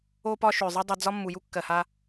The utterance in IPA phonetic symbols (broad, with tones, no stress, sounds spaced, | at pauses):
o˧ p ɒ˧ ʃ ø˩ zˤ ɨ˧ dˤ ɛ˧ d͡z ɒ˥ mː u˩ j u˥ kː ɜ˩ h a˧